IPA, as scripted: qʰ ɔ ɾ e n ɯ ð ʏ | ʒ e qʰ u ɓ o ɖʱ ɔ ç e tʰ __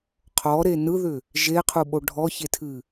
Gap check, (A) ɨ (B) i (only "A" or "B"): A